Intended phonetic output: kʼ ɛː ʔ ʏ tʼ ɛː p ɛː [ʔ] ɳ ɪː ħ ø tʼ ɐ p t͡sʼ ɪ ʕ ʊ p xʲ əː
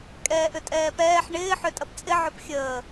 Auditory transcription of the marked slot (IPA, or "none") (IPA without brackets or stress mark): ħ